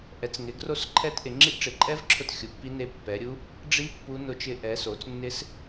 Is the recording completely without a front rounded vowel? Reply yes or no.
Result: yes